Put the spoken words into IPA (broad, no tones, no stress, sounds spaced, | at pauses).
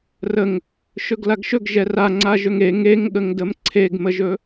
r ə ŋ | ʃ ɵ ɡ l a ɡ ʃ ɵ ɡ ʒ ɛ r a ŋ͡ǀ a ʒ ɵ ŋ e ŋ e ŋ ɠ ə ŋ d ə m ǀʰ e ɡ m ə ʒ ɵ